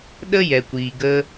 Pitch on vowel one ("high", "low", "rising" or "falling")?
high